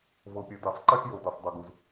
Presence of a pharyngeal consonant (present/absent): absent